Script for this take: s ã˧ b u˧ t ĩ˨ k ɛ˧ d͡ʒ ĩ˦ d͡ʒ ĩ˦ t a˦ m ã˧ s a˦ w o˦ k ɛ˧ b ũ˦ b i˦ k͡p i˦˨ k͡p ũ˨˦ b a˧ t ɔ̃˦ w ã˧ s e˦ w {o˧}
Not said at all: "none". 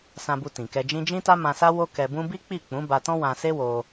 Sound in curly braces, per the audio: o˧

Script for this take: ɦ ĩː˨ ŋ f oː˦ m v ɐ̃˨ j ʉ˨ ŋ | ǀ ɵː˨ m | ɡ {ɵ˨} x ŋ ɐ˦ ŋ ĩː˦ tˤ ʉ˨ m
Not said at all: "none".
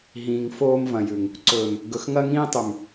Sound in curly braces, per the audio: ɵ˨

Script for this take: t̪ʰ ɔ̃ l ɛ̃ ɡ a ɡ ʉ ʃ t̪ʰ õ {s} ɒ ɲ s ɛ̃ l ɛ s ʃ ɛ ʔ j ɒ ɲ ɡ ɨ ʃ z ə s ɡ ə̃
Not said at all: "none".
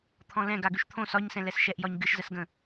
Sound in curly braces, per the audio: s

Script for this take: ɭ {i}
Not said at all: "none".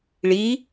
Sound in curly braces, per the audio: i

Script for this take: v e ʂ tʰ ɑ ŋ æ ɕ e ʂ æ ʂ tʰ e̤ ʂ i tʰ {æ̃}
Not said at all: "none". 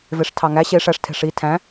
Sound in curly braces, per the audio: æ̃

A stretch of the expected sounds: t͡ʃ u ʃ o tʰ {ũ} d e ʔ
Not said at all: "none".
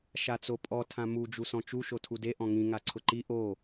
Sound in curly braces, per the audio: u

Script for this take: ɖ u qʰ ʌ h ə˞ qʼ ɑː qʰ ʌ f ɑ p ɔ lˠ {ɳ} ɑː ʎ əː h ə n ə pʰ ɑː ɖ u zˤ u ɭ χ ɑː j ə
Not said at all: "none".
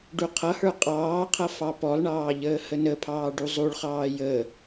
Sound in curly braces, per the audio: ɳ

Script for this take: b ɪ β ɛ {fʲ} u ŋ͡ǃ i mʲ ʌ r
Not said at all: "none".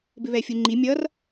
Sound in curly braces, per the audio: fʲ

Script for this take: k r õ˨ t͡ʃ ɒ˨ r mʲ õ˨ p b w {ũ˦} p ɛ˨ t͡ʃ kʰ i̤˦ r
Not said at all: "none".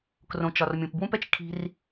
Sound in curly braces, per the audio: ũ˦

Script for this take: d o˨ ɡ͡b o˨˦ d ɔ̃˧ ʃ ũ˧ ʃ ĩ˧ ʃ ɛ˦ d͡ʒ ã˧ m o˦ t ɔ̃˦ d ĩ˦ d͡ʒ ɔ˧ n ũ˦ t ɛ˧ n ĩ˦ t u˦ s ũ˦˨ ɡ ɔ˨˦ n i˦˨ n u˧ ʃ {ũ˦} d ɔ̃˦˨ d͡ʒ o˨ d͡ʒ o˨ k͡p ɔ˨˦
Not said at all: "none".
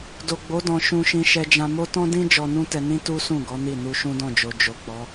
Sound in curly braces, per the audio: ũ˦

